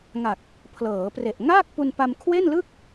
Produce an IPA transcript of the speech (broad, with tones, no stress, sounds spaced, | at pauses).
ŋ a˨˩ k̚ | pʰ l ɤː˩˦ p r e˨˩ ʔ ŋ aː˥˩ k̚ p u˧ n p a˧ m kʰ w e˥˩ n l ɯ˥˩ k̚